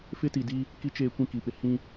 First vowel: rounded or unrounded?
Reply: unrounded